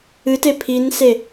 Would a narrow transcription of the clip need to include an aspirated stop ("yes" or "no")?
yes